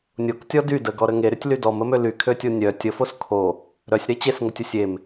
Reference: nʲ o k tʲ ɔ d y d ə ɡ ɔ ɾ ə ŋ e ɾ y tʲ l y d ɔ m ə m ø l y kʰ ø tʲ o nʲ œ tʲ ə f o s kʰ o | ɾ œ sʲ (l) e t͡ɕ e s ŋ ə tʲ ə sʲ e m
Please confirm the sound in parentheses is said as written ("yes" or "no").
no